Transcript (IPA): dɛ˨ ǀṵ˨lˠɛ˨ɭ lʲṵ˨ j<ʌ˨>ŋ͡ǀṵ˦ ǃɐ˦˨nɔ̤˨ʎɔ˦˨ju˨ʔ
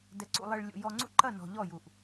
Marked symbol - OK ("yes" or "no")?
no